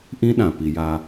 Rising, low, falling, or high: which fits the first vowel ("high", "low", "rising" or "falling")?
high